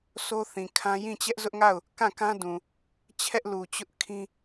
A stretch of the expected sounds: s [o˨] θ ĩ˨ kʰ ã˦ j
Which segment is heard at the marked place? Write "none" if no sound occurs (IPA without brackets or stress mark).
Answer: o˦